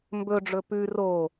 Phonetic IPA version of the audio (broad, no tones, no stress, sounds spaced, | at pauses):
m b ɵ ɖ͡ʐ ɵ p ʉ r o